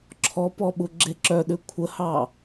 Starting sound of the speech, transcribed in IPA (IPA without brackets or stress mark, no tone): ǁʰ